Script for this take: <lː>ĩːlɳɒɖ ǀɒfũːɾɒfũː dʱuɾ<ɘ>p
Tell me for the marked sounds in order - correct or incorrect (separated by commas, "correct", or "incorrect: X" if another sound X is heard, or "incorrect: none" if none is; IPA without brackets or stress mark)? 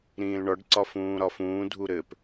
incorrect: ɾ, correct